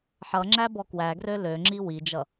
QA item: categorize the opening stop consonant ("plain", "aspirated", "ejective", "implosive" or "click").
click